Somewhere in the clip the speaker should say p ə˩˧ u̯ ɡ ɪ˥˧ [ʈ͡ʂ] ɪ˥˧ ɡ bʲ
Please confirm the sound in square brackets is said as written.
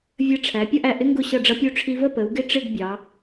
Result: yes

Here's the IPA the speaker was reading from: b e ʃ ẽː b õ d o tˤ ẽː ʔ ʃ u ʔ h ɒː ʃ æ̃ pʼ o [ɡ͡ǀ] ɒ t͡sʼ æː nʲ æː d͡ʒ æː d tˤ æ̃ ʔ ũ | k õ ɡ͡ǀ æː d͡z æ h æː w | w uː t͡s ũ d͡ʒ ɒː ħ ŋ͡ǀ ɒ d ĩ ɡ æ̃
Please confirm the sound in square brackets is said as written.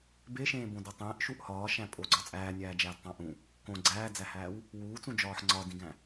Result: yes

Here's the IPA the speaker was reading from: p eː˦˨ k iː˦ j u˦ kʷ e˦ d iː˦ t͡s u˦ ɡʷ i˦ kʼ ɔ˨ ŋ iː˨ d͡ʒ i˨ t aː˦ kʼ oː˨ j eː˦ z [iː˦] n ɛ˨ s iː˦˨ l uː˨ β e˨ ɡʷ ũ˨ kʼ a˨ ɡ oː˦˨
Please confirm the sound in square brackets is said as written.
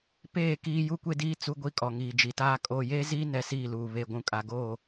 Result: yes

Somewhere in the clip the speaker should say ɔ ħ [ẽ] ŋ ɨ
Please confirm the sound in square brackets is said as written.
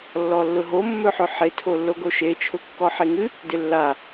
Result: no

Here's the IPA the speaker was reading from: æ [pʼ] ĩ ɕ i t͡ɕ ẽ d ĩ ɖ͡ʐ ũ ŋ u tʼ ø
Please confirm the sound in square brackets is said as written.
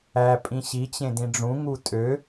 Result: yes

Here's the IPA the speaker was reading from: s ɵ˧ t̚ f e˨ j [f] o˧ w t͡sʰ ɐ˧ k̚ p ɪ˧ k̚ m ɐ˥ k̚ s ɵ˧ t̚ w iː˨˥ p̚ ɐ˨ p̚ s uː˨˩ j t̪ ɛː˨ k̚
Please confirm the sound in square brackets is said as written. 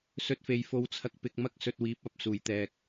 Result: yes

